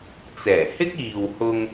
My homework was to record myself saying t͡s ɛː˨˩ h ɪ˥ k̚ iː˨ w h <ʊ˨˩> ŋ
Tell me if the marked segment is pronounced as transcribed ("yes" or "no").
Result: no